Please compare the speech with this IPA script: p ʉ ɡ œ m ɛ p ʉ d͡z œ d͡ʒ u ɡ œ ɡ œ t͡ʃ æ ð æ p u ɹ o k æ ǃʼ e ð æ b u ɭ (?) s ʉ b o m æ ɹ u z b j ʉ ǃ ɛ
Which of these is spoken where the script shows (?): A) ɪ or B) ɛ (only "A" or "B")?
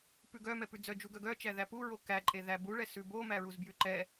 B